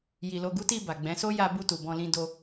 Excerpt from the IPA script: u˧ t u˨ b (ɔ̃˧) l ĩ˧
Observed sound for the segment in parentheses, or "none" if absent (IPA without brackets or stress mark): ɔ̃˧